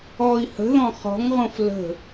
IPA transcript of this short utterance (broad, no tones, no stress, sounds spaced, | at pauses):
ɔ i̯ h ə̤ ð ɔ̃ χ ɔ̤ ŋ ʁ õ f l ə̤